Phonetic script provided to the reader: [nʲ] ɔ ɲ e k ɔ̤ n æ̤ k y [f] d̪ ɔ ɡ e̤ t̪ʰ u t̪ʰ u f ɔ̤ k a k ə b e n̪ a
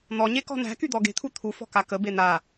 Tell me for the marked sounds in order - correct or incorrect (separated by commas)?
incorrect, incorrect